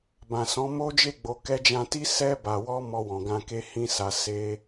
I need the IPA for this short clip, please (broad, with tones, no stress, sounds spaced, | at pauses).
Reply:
b ã˨ s ɔ̃˨˦ m o˦ d͡ʒ e˦˨ ɡ͡b o˨ k ɛ˧ d͡ʒ ã˧ t i˦ s ɛ˧ b a˨ w ɔ˧ m ɔ˧ w ɔ̃˨ ɡ ã˧ k e˦ h ĩ˦ s a˧ s e˦